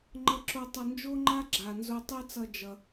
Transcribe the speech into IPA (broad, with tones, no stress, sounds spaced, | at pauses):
ŋ͡ǃ ʌ˧ ǁ o˧ tˤ ʌ˧ n d͡ʒ o˥ ŋ͡ǃ a˥ ɡ͡ǁ a˩ n z o˧ tˤ e˥ t͡s ʌ˧ d͡ʒ ʌ˩